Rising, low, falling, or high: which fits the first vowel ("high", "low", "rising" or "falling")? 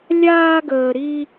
high